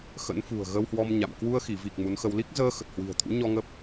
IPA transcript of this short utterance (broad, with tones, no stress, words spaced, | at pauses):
xə̰˧˥n fṳ˨˩ə̯ɣə˧whwɔ˧m ɲa̰˧˨m kwu˧ə̯ xi˧˩vi˨˩k̚ mu˨˦nxə˧w li˦˥k̚zəː˧ xə˨˩t̚hwi̤˨˩ə̯t̪ʰṵ˧˥ ɲɔ˧ ŋə˦˥p̚